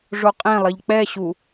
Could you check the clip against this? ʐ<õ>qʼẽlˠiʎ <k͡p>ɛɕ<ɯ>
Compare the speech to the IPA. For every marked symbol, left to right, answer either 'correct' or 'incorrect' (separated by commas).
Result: incorrect, correct, incorrect